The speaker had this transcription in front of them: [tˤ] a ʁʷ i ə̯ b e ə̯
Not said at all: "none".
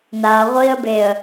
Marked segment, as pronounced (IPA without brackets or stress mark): n